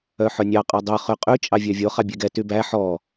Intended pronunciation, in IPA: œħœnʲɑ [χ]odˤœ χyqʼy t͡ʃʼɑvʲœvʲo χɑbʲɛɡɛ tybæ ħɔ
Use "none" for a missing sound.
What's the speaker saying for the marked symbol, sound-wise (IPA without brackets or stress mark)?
qʼ